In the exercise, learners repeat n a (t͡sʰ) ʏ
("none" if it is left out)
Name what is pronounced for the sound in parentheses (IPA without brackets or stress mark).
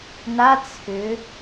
t͡sʰ